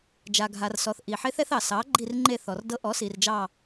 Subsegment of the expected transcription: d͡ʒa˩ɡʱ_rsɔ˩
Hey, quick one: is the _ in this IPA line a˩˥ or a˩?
a˩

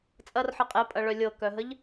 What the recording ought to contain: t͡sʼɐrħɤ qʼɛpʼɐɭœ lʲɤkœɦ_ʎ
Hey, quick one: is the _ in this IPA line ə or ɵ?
ə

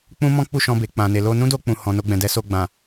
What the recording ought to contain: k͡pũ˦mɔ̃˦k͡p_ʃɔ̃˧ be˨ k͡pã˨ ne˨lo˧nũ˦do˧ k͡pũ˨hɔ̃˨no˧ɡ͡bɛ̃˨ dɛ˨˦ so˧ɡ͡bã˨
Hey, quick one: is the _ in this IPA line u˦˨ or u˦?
u˦˨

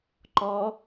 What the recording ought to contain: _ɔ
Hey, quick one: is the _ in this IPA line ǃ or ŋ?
ǃ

